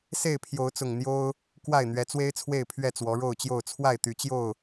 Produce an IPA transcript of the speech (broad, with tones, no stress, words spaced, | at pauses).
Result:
se˥˨ɪ̯pʰjo˨˦ʊ̯t͡sʊ˨˩ŋ n̪jo˦ʊ̯ | kwa˥˨ɪ̯n̪ɥɛ˨˦t͡swe˦ɪ̯ t͡sʰwe˥˨ɪ̯pʰɥɛ˥˨ t͡swɔ˨˦ɻo˥˨ʊ̯t͡ɕjo˥˨ʊ̯ t͡sʰwa˥˨ɪ̯t̪y˨˦t͡ɕjo˥˨ʊ̯